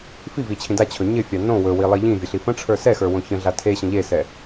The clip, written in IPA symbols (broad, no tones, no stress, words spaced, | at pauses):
fivit͡ɕʰĩ dat͡ɕʰɵ ɲɪfʲa nõ wɵwilˠi ʎĩvʲəɬi fə̃ʈ͡ʂʰə˞ sɛxə˞wõ çə̃ɮa tʰeɕə̃ ʎesɛ